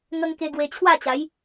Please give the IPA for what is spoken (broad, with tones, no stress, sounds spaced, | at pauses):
ŋ ə˧ ŋ k e˧ ɡ w e˧ t͡ɕʰ w a˥˧ t͡ɕ a˨˦ j